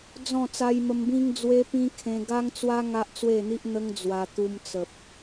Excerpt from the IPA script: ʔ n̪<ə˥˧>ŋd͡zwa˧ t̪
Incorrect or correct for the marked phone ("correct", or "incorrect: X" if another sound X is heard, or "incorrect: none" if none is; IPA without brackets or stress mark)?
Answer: incorrect: ə˦